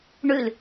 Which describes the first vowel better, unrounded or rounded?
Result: rounded